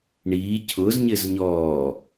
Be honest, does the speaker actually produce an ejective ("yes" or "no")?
no